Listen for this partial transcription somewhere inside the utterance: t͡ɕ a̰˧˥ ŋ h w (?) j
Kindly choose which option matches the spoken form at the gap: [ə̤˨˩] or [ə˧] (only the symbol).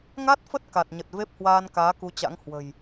ə̤˨˩